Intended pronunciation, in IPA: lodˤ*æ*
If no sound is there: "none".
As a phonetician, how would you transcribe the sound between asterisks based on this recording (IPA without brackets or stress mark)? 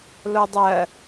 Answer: ɜ